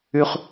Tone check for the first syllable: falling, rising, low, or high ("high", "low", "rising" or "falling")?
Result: low